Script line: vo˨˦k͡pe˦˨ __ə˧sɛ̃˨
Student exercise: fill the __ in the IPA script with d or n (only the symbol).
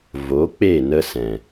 n